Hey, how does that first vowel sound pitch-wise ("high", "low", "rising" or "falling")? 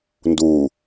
low